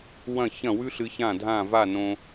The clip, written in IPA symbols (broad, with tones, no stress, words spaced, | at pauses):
wɐ̃˥˩çɐ̃˥˩wʉ˥ɬɨ˧ çã˥˩ dʱã˥˩va˥˩nõ˧